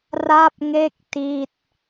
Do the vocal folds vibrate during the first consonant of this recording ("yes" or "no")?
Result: yes